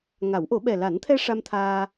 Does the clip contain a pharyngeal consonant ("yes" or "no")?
no